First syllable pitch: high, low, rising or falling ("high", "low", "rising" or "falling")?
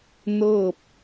falling